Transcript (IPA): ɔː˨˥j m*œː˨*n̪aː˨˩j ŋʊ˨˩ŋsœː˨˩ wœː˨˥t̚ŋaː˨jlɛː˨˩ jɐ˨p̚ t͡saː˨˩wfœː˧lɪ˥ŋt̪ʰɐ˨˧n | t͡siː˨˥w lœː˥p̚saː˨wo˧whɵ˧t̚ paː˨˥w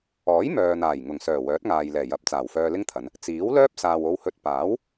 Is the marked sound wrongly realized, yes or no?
no